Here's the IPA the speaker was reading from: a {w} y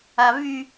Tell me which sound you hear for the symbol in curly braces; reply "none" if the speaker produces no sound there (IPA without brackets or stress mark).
v